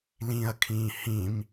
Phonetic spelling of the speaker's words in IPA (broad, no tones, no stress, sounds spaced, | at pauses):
l ĩ ɐ̯ kʰ ĩː h ĩ m